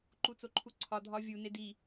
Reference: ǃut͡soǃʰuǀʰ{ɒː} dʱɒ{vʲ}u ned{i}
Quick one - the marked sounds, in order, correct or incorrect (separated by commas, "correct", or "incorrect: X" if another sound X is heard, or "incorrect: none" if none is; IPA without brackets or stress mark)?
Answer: incorrect: ɒ, correct, correct